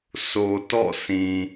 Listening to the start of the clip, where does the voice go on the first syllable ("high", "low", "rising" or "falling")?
low